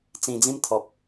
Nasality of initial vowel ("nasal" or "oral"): nasal